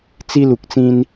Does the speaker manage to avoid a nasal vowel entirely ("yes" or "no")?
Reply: no